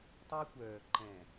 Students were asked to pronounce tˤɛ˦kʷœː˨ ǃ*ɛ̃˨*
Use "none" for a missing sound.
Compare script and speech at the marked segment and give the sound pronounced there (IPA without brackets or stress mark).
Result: ɛ̃˨